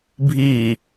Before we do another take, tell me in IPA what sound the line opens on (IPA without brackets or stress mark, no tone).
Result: bʱ